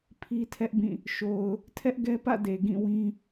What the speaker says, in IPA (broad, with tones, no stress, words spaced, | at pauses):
pʰi˦tʰɛ˦ʔbĩ˦˨ | ʃo˨ʊ̯ | tʰɛ˦ʔɡɛ˦ pä̰˦˨ de˨ɡĩ˦˨wĩ˦